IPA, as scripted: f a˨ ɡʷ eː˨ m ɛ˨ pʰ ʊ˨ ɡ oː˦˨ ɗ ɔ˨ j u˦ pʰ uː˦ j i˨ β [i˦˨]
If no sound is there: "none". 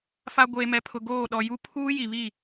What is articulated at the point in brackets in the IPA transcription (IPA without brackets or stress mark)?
i˦˨